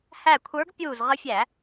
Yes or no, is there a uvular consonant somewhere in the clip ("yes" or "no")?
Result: yes